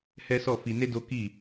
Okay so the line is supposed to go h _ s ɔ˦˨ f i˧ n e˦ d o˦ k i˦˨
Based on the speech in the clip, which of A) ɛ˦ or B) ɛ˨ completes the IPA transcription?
A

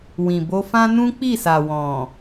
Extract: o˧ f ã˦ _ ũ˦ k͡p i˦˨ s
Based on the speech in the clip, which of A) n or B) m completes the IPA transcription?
A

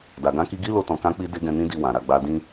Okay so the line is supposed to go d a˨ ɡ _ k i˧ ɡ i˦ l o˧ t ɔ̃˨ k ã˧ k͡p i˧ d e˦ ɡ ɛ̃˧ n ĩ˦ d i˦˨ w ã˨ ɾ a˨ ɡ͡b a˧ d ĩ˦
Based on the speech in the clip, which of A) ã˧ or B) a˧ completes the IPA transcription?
A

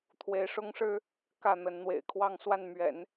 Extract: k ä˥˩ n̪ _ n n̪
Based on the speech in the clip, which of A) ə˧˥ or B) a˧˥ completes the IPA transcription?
A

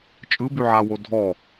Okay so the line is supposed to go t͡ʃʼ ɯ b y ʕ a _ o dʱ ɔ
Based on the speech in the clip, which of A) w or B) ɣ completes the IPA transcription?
A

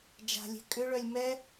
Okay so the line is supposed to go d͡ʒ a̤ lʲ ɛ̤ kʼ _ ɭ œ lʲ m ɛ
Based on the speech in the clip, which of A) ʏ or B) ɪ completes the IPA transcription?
A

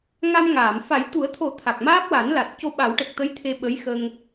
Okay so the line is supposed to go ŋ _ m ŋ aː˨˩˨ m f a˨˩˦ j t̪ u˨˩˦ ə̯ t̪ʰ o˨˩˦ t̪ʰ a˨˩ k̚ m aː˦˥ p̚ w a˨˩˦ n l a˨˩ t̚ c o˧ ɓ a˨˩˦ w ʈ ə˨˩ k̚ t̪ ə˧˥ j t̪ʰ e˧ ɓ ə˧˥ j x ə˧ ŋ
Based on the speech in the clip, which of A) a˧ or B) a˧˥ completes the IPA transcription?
A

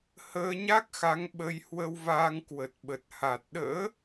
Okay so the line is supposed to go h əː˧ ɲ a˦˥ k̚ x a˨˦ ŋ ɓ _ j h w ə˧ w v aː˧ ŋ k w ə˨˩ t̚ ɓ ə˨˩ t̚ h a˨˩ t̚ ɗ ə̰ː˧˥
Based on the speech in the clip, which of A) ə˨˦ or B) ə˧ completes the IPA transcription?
B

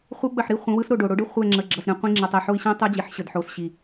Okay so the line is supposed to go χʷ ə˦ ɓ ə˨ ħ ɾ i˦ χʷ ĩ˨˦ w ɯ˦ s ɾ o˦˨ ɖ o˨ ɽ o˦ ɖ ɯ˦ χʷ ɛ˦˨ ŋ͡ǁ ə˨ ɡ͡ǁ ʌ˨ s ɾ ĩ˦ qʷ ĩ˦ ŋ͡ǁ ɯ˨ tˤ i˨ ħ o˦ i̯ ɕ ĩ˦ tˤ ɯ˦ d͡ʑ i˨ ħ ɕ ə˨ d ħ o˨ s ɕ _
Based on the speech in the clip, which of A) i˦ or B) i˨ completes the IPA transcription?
B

